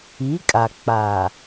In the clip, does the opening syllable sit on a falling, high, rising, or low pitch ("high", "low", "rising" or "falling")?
rising